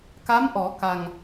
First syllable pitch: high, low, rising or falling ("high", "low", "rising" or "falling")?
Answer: rising